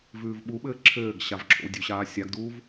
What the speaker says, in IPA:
v ʉː v ɓ u ɓ ɘː ǁʰ ɘː ɡ ɕ a v ǁʰ o̰ w dʲ ʉ ɕ aː sʲ a ɡ d uː v

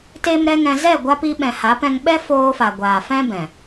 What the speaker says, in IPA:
t e˦ m ɾ ɛ˦ ŋ ɛ̃˧ z ɛ˦˨ ɡʷ a˧ p i˧ ɓ ɛ̃˨ h a˨˦ p ɛ̃˧ ŋ ɓ ɛ˦ f oː˧ f a˨ ɡʷ aː˨ f ɛ̃˦ b ɛ̃˨

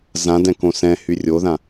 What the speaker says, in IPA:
z ã d ɛ̃ k õ s ɛ̃ h y rʲ o ð ã

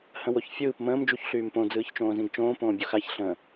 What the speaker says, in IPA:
h ə̃ w o ç fʲ ɯː p m ə̃ː m d͡ʒ u ç ɬ yː m p õ d͡z ɯː ç t͡ʃ õː z ĩ ɡ t͡ʃ õː p õː bʲ u x a ç ɬ ə̃

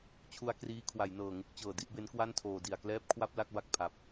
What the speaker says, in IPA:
t͡ɕʰ u˧ a̯ k r iː˦˥ kʰ w a˩˦ j n ɤː˨˩ ŋ u˦˥ k̚ t͡ɕ ɤː˨˩ d i˦˥ ʔ b e˦˥ n k w a˥˩ n tʰ oː˨˩ d i˨˩ a̯ k l ɛː˥˩ p̚ kʰ w a˥˩ p̚ l a˥˩ k̚ b a˨˩ k̚ pʰ a˨˩ p̚

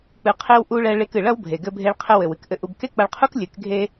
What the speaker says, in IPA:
k͡p ɨ˧ qʰ e˦ w ʔ u˧ ɭ ɛ˧ ɭ e˧ k ɨ˨ ɭ ɐ˦ w bʱ e˨ ɡ ɘ˧ bʱ e˧ ɭ qʰ ɘ˧ w ɘ˨ w ɨ˦ k ʔ ɘ˧ ʔ u˧ b k e˦ k͡p ɐ˧ ɭ qʰ u˦ k lʲ ɨ˨˦ k ɡʱ e˦

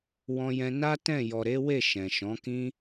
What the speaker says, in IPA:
w ɔ̃˧ j ɛ̃˧ n a˦ t ɛ̃˦˨ j ɔ˨ ɾ e˨˦ w e˦˨ ʃ ɛ̃˨ ʃ ɔ̃˨˦ k ĩ˦

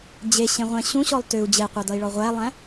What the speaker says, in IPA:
d͡ʑ e ɕ ẽ ʁʷ ɛ̃ ɕ ũ ɕ ɔ lˠ t ʏ u̯ d͡ʑ e qʷ a d ʌ i̯ ɭ ɔ ʁʷ æ lˠ æ̃

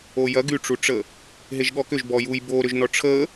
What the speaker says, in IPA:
o j ɐ ɡ y ʈ͡ʂ u ʈ͡ʂ ə | ɦ e ʒ ɠ ɔ k ʏ ʒ b ɔ j u j b o ɾ ʏ ʒ n ɔ ʈ͡ʂʰ ə

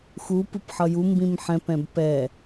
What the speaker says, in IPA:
x u p ɯ p ħ ʌ j u m b ĩ m ħ ɛ̃ p ɛ̃ b p ɛ

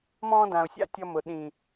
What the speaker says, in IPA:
m ɔ̃ː˧ d ã˨ ʊ̯ sʲ a̰˧ tʲ ʌ˧ m ʊ˨ ɗ ĩ˨

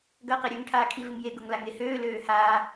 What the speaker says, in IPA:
ɡ ɐː q e ɾʲ ø ŋ ʈʰ aː kʰ i v ɪ ŋ j e ɡ ʊ ŋ l a ŋ e h øː l øː h aː

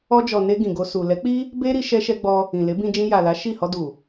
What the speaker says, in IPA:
ɔ˧ d͡ʒ ɔ˨ n e˧ ɡ ĩ˨ ɡ o˧ s u˨ l ɛ˨˦ k͡p i˦ | b e˦ ɾ i˧ ʃ ɛ˧ ʃ ɛ˧ ɡ͡b ɔ˧ | ĩ˨ l e˨˦ b ĩ˧ d͡ʒ ĩ˧ j a˨ l a˨˦ ʃ i˦˨ h ɔ˧ d u˨

